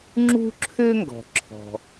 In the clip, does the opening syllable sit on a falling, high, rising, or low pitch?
high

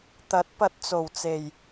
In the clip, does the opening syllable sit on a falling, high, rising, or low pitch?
rising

